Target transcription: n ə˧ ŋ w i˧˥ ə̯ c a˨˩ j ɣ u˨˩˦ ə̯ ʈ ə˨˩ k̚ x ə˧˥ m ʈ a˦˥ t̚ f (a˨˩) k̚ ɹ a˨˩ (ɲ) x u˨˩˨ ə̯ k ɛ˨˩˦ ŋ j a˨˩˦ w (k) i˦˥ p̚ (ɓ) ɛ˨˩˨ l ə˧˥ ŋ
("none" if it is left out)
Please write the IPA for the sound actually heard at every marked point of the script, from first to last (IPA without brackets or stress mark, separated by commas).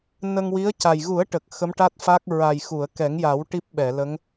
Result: a˦˥, j, ʈ, ɓ